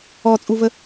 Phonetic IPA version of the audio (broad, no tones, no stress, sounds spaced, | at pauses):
ɔ t͡sʼ u v ə